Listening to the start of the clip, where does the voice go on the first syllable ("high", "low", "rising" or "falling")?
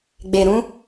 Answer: low